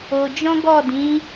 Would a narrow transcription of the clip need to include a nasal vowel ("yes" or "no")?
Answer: yes